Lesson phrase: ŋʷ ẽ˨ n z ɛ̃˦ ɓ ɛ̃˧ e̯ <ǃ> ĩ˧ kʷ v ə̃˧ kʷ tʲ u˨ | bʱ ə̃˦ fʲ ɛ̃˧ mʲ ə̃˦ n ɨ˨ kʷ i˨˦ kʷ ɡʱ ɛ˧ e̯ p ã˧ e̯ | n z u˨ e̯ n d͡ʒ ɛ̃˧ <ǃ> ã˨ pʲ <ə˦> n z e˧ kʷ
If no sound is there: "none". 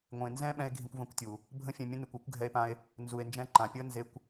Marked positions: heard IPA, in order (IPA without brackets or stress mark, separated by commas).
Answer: ɡʱ, ǃ, ə˦